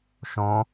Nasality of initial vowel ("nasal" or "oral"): nasal